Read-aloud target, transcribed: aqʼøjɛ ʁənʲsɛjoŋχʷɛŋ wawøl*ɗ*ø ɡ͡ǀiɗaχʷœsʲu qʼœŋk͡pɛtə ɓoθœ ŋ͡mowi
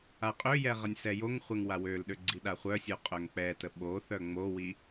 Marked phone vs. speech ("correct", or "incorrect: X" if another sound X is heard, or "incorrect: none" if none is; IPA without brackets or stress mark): correct